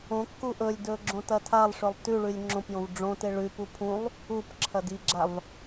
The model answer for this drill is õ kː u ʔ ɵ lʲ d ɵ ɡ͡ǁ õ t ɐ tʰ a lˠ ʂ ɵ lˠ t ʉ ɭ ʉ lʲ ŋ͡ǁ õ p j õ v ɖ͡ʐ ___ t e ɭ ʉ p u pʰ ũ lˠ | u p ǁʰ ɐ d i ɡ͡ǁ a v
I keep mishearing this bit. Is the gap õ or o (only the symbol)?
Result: õ